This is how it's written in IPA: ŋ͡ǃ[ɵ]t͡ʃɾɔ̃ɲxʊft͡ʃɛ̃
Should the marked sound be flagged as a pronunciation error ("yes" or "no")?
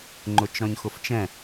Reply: yes